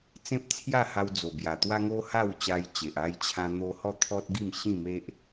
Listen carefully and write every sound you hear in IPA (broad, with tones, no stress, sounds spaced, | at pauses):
t͡s ẽ˦ p̚ t͡sʰ j a˥˧ h a˧ w d͡z o˨˩ b j a˨˩ t̪ w a˦ ŋ o˦ h a˥˧ w t͡ɕ a˧ j t͡ɕ e˨ ʔ a˧ j t͡ɕʰ ã˧ n̪ o˧ h ɔ˥˧ t̪ʰ ɔ˦ t̚ ɡ i˥˧ m ɕ ĩ˥˧ m e˦ ʔ